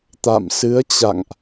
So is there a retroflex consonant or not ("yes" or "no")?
no